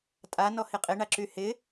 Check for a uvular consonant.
present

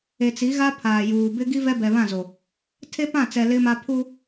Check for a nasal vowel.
present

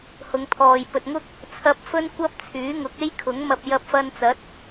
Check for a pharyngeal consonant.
absent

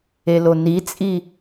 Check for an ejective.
present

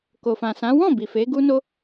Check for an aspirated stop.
absent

